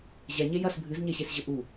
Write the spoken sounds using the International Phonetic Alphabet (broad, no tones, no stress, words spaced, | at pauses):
ʑɛɲe jɐs bʱɨzɲeɕesʑɘ ʔu